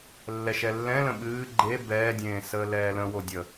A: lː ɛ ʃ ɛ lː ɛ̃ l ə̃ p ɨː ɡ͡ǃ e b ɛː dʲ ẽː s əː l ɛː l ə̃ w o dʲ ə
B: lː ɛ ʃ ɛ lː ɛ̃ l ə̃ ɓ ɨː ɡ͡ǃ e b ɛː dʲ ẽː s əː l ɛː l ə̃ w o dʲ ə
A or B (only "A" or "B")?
B